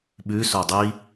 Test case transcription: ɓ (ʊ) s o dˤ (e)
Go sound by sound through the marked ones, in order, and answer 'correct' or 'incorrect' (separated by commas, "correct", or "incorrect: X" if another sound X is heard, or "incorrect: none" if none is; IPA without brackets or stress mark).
incorrect: ʉ, incorrect: i